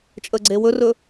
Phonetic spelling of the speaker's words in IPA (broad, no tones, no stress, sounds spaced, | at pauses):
t͡ʃʼ ə ɡ͡ǀ e w ɵ r ɵ